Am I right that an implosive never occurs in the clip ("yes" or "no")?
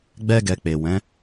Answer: yes